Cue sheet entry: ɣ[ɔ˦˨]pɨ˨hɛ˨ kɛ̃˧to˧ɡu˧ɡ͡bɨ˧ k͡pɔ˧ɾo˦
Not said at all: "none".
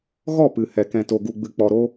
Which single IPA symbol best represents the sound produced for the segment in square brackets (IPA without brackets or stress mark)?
ɔ˦˨